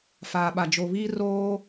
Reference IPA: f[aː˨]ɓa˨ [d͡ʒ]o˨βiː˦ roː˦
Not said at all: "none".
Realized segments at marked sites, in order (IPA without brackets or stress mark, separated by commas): aː˨, d͡ʒ